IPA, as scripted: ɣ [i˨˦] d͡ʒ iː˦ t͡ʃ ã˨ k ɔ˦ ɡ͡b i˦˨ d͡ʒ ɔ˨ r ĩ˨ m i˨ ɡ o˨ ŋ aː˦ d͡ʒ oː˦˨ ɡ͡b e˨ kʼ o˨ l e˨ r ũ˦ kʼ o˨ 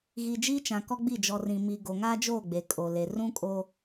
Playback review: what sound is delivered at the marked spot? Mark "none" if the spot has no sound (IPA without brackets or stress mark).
i˨